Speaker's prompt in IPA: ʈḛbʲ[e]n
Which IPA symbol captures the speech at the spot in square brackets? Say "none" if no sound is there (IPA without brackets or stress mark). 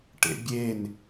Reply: e